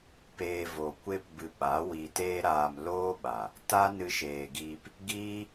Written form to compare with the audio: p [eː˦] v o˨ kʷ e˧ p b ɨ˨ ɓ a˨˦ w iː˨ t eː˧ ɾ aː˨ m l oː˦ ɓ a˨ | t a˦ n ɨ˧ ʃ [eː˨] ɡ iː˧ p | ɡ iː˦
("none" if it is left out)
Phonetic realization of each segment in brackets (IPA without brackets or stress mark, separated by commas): eː˧, eː˨